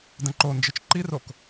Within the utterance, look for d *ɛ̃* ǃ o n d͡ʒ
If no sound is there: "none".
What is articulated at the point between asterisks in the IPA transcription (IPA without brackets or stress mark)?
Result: ɛ̃